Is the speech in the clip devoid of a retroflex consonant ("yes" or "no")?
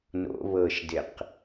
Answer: yes